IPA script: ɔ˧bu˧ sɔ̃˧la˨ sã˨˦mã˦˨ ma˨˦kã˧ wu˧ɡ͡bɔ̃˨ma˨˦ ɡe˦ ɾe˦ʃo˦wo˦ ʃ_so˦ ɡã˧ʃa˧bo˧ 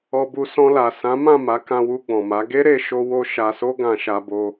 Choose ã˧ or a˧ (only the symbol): a˧